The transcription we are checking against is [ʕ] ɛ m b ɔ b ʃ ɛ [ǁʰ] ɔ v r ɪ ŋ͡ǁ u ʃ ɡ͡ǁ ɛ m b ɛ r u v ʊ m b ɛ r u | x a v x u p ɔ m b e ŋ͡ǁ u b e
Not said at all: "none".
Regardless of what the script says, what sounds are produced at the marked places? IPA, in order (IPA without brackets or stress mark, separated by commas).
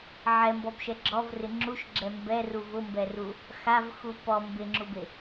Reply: ʕ, ɡ͡ǁ